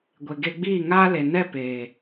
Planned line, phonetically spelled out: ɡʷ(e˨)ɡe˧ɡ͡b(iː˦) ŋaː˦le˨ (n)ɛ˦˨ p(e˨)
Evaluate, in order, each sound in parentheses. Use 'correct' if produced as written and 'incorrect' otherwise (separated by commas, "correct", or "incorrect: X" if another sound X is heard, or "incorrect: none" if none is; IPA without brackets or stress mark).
correct, incorrect: iː˦˨, correct, incorrect: eː˨